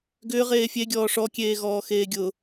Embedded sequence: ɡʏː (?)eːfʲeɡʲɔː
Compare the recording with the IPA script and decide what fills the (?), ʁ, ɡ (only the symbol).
ʁ